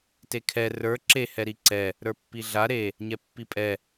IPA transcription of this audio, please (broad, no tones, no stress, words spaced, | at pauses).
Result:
tekʰɛ rə˞ ǁe hɛɾiǀɛ | ɾə˞pːiɮa ɾe | ɲɛpːipʼɛ